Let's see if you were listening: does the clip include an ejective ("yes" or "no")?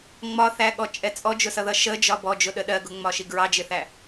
yes